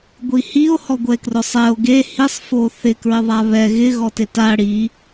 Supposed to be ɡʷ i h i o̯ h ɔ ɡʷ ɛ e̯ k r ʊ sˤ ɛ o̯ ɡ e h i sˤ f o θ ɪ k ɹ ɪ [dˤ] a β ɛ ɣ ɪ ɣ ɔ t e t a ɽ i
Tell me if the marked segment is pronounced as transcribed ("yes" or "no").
no